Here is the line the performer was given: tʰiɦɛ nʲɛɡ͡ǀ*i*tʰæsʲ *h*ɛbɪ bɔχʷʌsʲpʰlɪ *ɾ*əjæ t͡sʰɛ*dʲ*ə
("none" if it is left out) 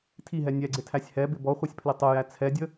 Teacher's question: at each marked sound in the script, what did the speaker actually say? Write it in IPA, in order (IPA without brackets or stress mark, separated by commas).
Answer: ɪ, h, tˤ, dʲ